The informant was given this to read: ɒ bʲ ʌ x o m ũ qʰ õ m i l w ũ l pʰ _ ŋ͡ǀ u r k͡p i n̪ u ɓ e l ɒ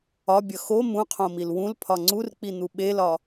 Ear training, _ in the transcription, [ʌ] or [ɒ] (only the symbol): ɒ